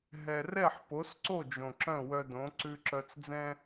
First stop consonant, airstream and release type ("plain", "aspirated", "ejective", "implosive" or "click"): plain